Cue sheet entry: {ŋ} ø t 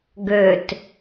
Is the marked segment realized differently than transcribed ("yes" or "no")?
yes